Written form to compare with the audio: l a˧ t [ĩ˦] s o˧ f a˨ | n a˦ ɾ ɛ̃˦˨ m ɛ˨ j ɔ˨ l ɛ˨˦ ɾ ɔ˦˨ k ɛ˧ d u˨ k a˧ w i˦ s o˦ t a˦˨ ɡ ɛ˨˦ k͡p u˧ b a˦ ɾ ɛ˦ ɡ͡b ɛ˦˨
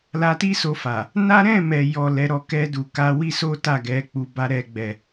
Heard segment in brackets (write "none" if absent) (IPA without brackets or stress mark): i˦